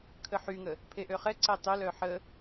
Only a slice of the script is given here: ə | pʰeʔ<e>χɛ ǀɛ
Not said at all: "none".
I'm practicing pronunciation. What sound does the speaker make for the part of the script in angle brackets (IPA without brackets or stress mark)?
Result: ø